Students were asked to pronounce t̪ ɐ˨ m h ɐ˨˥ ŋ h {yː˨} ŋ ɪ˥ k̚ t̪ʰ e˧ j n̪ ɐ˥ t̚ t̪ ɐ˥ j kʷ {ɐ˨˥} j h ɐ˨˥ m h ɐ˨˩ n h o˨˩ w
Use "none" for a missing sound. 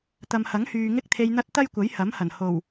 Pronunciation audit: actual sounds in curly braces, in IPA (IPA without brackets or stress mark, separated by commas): yː˨, ɐ˨˥